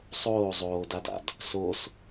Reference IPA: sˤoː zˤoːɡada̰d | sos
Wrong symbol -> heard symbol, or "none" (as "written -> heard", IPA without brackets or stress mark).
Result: ɡ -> d